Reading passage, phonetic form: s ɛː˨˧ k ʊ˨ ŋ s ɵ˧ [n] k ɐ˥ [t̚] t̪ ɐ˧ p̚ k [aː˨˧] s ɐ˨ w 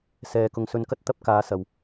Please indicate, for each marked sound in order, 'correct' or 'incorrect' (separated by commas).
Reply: correct, correct, correct